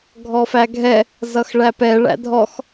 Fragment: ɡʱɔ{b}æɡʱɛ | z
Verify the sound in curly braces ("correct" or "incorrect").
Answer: incorrect